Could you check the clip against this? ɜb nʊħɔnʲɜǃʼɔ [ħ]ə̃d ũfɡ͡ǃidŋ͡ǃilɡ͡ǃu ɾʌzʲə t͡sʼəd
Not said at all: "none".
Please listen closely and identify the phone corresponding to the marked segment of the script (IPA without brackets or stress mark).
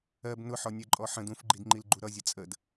ħ